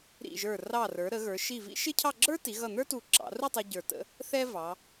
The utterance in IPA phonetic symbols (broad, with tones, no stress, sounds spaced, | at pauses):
ɾ ḭ˧˩ ʒ ə˞˧˩ r ɑ˧˩ r ə˞˩˧ ɾ ə˩˧ ɣ ə˞˩˧ ʃ i˧˩ v ḭ˥ ʃ ɪ˥ cʰ ɑ˥˧ ɡ͡ǁ ə˞˥ t i˩˧ ɣ ʌ˧˩ n̪ ə˞˥ t u˧˩ ǁ ɑ̰˩˧ r u˥˧ tˤ ɛ˧ ɟ ə˞˧˩ t ə̰˥ | θ ɛ˥ v ɑ˩˧